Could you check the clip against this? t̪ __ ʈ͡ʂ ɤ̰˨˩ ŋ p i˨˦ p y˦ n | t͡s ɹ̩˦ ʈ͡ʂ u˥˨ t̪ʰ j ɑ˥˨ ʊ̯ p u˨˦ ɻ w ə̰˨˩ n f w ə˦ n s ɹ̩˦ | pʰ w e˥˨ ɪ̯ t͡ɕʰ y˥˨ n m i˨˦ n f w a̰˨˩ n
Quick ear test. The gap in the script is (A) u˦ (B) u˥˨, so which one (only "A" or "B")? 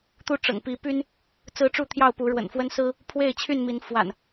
B